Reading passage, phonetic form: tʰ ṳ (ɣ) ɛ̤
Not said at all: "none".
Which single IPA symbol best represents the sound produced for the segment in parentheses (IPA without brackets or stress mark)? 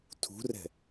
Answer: r